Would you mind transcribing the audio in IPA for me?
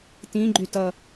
t ĩ ɡ͡ǃ y t ʌ

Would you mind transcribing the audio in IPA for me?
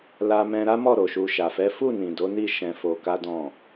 l a˧ m ɛ̃˧ ɾ a˦ m ɔ˦˨ ɾ o˨ ʃ u˧ ʃ a˨ f ɛ˨˦ f u˦˨ n ĩ˨ d o˨˦ n i˦˨ ʃ ɛ̃˧ f o˧ k a˦ d ɔ̃˦˨

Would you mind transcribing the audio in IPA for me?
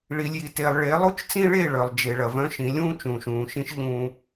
ɭ i˨ lʲ j i˨ t e˨ lˠ ɭ e˨˦ lˠ u˦ t͡ʃ t͡s ĩ˦ ɭ e˦˨ ɭ œ˨ lˠ d͡ʒ e˨ ɭ ɐ˨ v œ̃˦ ʃ ĩ˨˦ lʲ ũː˦ t͡ʃ ũː˨ ʃ ũː˨ ʃ ĩ˦ ʃ ʎ ũː˦

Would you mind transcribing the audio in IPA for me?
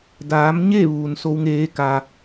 d aː˩˧ m ɲ e˥˨ ʋ uː˩ n s o˧˥ w ŋ eː˧˥ k a˧

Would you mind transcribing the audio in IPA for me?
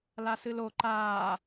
l a s ɨ l o ǃ aː

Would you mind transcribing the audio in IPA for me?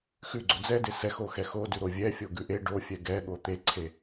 x ʉ ɡ͡ǀ o d͡z ɛ d e s ɛ x o x ɛ x o d ʉ ɾ o vʲ ɛ fʲ o ɡ ʉ ʔ e ɖ o fʲ ɛ ɡ ɛ ɠ o t̪ e ǀʰ e

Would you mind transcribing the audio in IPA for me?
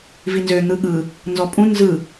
v i n z ø n̪ ɯ ɠ ɯ | n z ɔ pʼ ũ n z ɯ

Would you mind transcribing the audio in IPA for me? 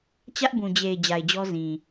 t͡ɕ ä˦ ʔ b ũ˨ d͡ʑ e˨ ɪ̯ d͡ʑ a˨ ɪ̯ d͡ʑ ɔ˦ z ĩ˨

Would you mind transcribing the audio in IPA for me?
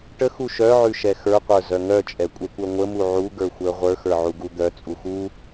ʈ ə x u ʃ œ ʕ ʉ ʃ ɛ x ə˞ qʷ ə˞ z œ ŋ œ t͡ʃʼ ɛ kʷʼ ɛ kʷ œ ŋʷ ə m u ʕ u ɡ ə˞ xʷ ə˞ ʁʷ ə˞ x ə˞ ʕ u ɡ u d̪ œ t͡sʼ u x u

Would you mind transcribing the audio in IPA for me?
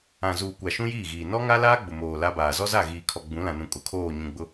ã˨ z uː˨ kʷ a˨ ʃ ũ˦ j iː˦˨ ɣ iː˨ n ɔ˦ ŋ a˦ l aː˦ ɡ͡b ʊ˨ m oː˨ l a˦ b aː˨ z ɔ˦ z a˦˨ ɣ iː˨ kʰ ɔ˨ ɡ͡b ũ˨˦ l ã˨ n ũ˨ kʼ ʊ˨ kʰ oː˦˨ ɲ ũ˨ ɡ͡b ʊ˦

